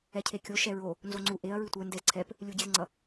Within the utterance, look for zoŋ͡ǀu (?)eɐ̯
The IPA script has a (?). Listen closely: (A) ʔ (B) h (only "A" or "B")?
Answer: A